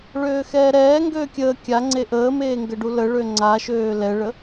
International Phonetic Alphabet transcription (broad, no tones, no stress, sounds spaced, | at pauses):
ɭ øː x ɛː ɾ ɛː ŋ ɡ øː kʲ əː kʲ a ŋ͡ǀ e ʔ əː m eː ŋ ɡ ə ɖ u l ə ɭ ø ŋ͡ǀ a ʃ øː l ɛ ɭ ə